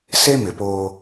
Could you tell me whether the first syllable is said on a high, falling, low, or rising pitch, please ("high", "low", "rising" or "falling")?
high